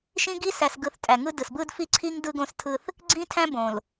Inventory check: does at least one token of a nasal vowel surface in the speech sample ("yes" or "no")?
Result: yes